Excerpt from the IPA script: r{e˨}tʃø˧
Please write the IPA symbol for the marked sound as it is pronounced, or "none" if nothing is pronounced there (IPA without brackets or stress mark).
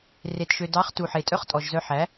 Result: e˧